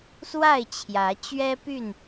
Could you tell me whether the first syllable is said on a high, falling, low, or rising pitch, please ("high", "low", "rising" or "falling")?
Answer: falling